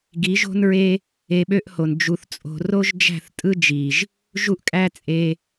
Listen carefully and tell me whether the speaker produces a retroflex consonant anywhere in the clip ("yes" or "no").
no